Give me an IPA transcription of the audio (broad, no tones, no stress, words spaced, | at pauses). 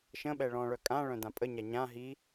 ʃə̃ɓɛ ɭɔ̃ɭœ kʼãɭœ̃ dãpʼəɲa ɲã ɦi